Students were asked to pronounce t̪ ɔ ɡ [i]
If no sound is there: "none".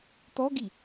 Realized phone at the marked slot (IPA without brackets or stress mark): i